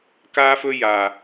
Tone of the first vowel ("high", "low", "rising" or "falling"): high